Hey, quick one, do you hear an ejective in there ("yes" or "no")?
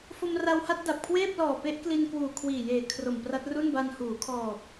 no